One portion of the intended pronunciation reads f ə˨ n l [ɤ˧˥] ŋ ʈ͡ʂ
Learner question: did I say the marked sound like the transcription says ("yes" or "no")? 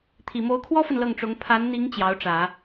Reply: no